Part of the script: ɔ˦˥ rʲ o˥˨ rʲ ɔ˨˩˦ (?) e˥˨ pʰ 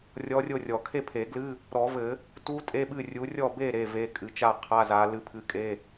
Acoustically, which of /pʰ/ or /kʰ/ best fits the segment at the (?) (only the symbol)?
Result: kʰ